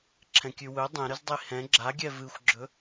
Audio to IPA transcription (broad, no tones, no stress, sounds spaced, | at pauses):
ǁʰ ɛ̃ kʲ ʉ w ɵ dˤ ɛ̃ ɾ ɨ z dˤ i h ɛ̃ ɡ͡ǁ a ɡʲ ɛ v ɨ xʷ ɡ͡ǁ ɵ